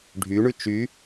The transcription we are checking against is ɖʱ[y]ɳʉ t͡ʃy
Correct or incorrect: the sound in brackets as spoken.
correct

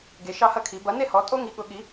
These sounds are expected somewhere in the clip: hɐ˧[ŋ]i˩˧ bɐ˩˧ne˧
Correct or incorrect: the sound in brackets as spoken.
incorrect: kʰ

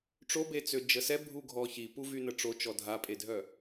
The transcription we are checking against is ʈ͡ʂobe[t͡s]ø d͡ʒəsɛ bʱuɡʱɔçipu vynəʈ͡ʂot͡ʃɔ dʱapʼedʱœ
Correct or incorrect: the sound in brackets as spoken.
correct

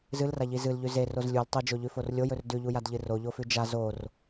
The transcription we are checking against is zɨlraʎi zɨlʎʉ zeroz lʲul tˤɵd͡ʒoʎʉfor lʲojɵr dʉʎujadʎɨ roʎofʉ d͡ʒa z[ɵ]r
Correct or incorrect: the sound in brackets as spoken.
incorrect: o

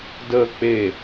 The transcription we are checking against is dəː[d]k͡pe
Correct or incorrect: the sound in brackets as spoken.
incorrect: none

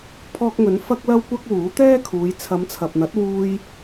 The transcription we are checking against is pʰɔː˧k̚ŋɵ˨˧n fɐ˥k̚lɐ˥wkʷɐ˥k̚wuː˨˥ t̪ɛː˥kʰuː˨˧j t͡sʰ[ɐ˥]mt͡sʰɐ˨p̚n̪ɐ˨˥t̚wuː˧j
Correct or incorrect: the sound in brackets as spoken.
incorrect: ɐ˨˧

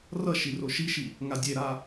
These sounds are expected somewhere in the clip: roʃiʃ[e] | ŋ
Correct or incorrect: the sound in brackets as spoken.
incorrect: i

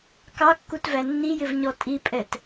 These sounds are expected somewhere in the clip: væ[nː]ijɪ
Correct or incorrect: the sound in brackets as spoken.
correct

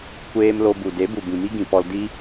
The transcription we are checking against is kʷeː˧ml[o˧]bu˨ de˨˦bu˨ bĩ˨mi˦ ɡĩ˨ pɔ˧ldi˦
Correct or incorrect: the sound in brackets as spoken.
correct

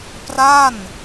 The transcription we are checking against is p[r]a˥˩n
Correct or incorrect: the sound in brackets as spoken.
correct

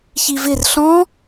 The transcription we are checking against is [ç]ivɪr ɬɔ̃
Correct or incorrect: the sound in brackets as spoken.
correct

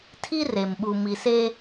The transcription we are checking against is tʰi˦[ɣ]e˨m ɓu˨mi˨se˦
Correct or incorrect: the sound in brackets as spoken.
incorrect: r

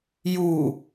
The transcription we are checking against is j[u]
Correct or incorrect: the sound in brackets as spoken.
correct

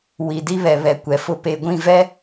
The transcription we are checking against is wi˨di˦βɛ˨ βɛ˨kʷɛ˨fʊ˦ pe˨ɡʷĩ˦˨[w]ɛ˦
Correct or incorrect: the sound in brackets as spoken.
incorrect: v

